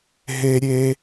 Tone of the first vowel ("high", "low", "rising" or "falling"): high